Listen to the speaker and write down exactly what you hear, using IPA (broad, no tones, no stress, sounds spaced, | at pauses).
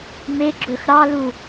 m e ɡ͡ǁ ɵ x ɾ ɑ l u